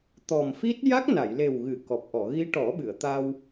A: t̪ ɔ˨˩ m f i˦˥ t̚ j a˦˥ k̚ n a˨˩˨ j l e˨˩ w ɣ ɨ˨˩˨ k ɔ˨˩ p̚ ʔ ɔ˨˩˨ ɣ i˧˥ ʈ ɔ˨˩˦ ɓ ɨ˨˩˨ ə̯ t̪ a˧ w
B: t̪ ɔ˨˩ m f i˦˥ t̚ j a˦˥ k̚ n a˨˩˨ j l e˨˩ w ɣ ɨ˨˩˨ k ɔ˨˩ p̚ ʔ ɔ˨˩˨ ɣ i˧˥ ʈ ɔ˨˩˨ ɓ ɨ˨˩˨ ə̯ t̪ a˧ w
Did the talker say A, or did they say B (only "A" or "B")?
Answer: A